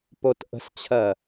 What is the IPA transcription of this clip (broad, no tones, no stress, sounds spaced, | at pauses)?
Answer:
p o t ʔ ə̤ s t͡ɕʰ ɜ